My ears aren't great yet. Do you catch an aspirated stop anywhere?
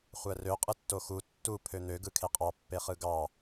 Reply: yes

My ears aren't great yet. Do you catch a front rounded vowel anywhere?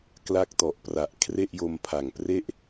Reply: no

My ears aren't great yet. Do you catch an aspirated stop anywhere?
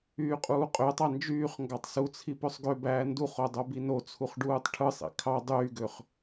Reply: yes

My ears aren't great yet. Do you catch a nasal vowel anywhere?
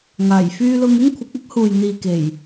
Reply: no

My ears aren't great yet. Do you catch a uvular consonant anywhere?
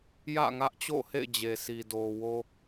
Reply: no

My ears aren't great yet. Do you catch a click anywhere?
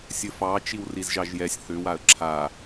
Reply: yes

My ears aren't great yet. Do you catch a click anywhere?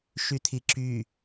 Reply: yes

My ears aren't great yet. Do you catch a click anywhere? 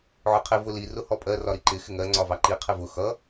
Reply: yes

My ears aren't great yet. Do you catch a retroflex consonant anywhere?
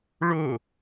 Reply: yes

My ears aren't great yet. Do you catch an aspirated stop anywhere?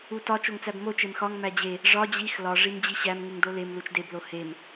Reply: no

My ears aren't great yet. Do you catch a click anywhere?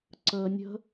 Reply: yes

